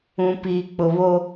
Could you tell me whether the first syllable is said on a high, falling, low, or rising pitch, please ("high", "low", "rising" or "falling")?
low